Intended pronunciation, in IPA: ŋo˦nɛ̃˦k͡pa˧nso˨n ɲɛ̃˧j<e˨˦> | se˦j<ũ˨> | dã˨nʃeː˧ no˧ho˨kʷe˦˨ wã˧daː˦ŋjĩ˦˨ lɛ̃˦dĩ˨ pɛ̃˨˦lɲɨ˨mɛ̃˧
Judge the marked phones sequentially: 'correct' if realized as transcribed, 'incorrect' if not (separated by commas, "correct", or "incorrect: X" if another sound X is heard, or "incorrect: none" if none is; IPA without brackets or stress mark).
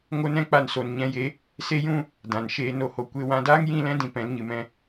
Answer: correct, incorrect: ũ˦